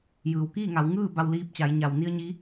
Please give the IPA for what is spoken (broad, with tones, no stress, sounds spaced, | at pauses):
j ɯː˩ w k iː˥˨ ŋ a˩˧ w ŋ ɯː˥˨ b a˧ w l iː˧ p̚ t͡ɕ a˩˧ j ɲ a˩ w n i˧ ə̯ ɲ i˧˥